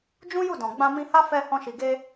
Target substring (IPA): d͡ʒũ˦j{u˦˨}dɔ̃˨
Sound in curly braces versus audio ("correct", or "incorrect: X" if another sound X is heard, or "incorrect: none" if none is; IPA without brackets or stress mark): correct